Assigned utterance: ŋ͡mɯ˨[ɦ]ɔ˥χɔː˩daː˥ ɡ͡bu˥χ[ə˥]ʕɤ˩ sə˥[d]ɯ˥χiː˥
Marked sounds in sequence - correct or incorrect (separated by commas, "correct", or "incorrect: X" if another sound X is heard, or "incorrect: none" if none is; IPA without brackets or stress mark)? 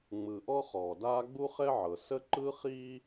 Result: incorrect: ʔ, incorrect: ɛ˥, incorrect: ǃ